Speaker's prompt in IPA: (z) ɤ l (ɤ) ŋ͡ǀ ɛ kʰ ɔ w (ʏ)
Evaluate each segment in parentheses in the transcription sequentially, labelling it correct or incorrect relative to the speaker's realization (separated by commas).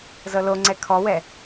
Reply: correct, incorrect, incorrect